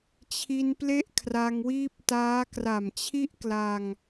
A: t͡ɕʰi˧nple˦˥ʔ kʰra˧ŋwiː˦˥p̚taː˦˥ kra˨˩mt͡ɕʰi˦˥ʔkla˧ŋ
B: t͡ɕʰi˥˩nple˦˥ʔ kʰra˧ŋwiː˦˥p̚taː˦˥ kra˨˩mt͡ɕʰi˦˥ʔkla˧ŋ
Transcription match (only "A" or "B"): A